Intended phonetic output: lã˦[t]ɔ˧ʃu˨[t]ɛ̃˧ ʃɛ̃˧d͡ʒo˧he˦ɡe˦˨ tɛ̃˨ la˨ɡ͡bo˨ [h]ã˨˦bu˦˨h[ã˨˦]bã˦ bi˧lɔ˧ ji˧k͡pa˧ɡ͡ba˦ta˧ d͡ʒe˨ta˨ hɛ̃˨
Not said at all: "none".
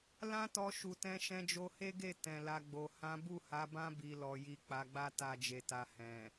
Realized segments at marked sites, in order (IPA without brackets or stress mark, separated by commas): t, t, h, a˨˦